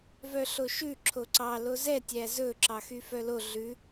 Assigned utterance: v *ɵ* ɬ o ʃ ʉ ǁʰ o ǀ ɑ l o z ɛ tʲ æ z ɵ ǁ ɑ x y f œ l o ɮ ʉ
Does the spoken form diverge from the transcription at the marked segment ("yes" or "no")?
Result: yes